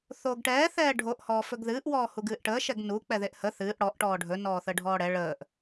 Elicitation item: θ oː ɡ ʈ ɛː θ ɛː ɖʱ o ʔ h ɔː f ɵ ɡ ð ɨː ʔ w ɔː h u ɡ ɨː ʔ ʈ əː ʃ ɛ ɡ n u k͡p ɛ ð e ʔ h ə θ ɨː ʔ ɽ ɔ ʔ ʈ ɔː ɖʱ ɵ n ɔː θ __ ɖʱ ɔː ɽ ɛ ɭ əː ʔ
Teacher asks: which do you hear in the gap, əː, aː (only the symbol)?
əː